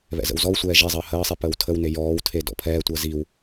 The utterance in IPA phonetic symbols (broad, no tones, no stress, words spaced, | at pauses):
βɛ̰zə̰wzɔwsʷɛː ʒezˤəː həːsˤi pəːwtʰəwne jɔːwtʰe dɔ̰pʰɛːtʷəː ziw